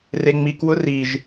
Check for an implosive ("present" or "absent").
absent